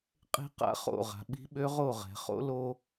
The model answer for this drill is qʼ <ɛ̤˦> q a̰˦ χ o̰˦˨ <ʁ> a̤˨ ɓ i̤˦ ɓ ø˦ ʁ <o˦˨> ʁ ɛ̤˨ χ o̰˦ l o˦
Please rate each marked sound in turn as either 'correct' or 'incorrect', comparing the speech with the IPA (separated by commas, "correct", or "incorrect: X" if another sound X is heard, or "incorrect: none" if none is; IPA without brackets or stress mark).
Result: incorrect: e̤˦, correct, correct